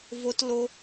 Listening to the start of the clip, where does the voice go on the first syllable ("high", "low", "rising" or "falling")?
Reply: high